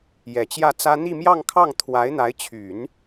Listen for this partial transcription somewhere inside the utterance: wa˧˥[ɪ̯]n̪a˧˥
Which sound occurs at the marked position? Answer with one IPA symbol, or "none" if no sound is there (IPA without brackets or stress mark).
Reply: ɪ̯